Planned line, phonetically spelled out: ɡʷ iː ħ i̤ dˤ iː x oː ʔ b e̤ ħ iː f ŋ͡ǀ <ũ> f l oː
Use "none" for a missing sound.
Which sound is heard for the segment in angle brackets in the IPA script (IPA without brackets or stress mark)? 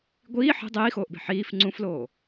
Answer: ũ